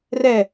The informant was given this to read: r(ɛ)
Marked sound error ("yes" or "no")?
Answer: no